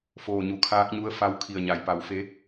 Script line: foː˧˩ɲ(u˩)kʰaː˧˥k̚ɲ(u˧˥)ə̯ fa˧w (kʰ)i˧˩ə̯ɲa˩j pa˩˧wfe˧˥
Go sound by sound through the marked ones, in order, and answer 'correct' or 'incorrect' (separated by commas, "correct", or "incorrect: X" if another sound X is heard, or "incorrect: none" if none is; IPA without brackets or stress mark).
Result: correct, correct, correct